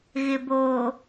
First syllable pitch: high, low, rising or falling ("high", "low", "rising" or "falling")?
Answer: low